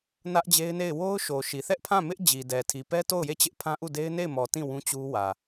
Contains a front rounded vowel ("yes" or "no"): no